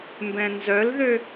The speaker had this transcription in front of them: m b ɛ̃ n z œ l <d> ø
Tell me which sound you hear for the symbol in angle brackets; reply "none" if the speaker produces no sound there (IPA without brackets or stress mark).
ð